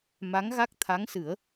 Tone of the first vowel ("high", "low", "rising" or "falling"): rising